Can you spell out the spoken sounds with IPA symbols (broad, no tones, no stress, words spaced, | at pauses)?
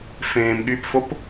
fẽːmɠypfop